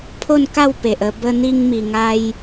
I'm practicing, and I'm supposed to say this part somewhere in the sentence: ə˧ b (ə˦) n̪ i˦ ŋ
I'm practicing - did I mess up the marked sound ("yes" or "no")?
no